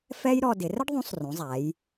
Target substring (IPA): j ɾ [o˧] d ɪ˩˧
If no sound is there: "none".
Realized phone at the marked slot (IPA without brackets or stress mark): ɔ˧